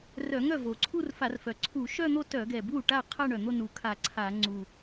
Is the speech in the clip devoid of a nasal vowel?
yes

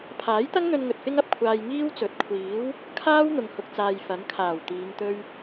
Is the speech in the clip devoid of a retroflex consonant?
yes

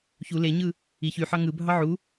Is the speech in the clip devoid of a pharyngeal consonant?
no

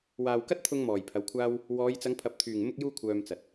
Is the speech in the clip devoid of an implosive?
yes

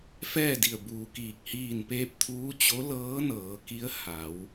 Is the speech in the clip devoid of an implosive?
yes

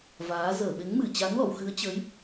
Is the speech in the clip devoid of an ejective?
yes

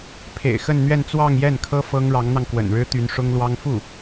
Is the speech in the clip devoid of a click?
yes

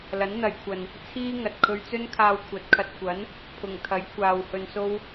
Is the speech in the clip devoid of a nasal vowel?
yes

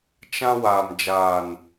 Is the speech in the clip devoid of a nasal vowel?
no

